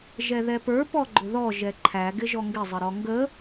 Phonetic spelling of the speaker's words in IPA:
ʒɛðɛpə˞ pɔɡ͡ǃʊðɔ ʒɛǃʰæ ɡɪʒɔŋɡɪ zˤəɾɔŋɡə

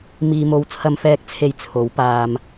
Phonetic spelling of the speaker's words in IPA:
miː˧mo˧w t͡sʰɐ˧mfɛː˧k̚ t͡sʰe˧j t͡sʰo˨˥w paː˨m

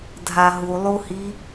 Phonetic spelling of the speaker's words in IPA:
dʱaɦulˠuhi

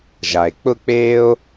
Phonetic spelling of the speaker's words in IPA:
ʒa˩e̯k͡pʊ˥k͡peː˥o̯

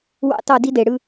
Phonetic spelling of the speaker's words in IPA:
wɑ̰˦˨tɑ˦˨di˦de˨ ɽɯ˦

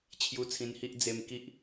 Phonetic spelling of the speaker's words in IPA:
t͡ɕʰju˧t͡sʰĩ˧nhi˦ʔ d͡ze˧mki˦ʔ

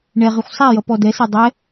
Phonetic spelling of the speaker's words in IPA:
ɳɛʁɨxʷ sˤajʌ pɔdɛse dˤɛ

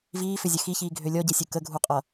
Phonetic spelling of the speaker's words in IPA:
viːfʏzʲə xiçiːɡʱø lʲɔɟesʲu kəɡʱuqʼʌ

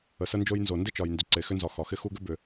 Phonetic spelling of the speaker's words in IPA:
ə˩ sə˦ nd͡ʒo˦jnzo˩ ndɪ˥t͡ʃɒ˩jndʏ˩ ǀe˩xʏ˦nzɒ˨ xɒ˩xɪ˦ xu˦ɡʏ˥ bʏ˨

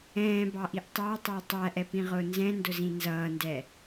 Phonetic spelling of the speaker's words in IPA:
ɛ̃ːbɑʔiʔ tˤɑtˤæ tˤæʔɛpĩʁʊː nzɛ̃ndʊzĩ nzʌːndɛ

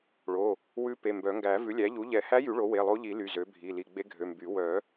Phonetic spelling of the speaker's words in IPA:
ɭo˩˧˩ | wʉ˧˥ pe˩˧˩mbœ˨˩˦ ŋɡæ˨˩˦ vʉ˩˥lʲæ˩˥ʎu˩˥ ʎɛ˨˩˦hæ˧˥jy˨˩˦ ɭo˩˥we˩˧˩lˠo˧˥ʎi˨˩˦ ly˩˧˩zø˩˥bʱi˩˧˩ li˩˧˩ɡ͡be˧˥ɡʱø˩˧˩ mby˨˩˦ wœ˨˩˦

